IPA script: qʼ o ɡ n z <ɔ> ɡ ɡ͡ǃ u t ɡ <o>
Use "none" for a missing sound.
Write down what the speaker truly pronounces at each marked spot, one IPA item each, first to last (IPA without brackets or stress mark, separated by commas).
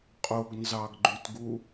ɑ, u